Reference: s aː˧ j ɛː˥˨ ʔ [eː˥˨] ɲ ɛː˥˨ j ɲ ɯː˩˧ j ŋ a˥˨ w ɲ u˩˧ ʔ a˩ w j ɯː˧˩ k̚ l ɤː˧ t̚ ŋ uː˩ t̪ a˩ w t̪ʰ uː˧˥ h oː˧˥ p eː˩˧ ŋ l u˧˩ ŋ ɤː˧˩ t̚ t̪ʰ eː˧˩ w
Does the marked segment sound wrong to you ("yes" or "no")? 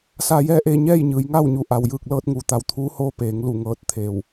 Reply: no